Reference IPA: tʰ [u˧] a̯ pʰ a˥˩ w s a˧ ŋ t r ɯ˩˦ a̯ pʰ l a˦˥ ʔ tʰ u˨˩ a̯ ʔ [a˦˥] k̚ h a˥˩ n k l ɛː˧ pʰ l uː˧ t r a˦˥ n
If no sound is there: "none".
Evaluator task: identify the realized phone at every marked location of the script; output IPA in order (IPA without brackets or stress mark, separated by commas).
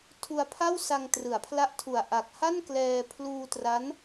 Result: u˧, a˨˩